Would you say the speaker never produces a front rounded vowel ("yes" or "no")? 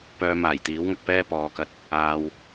no